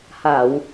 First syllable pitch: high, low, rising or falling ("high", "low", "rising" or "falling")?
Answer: low